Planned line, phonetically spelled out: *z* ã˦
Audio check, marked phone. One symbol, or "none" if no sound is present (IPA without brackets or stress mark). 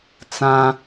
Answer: t͡s